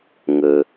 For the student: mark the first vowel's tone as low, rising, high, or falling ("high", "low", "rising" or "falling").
low